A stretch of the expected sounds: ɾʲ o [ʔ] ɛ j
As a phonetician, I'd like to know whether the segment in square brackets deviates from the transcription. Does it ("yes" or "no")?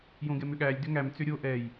no